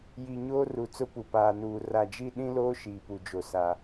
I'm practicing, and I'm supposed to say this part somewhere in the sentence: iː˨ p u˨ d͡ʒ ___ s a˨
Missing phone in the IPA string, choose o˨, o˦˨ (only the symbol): o˨